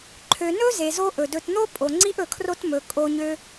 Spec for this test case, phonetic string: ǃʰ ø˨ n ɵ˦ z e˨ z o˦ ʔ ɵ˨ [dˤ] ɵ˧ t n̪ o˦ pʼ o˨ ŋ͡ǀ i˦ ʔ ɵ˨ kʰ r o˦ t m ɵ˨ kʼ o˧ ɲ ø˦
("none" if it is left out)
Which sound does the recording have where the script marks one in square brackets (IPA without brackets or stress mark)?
d